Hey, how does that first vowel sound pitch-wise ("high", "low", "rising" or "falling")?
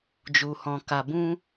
low